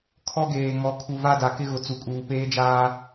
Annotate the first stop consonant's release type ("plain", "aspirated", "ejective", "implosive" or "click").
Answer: aspirated